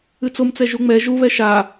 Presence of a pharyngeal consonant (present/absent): absent